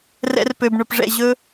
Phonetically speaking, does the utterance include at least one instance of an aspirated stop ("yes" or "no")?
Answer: no